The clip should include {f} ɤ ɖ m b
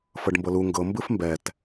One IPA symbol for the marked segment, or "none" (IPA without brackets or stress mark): f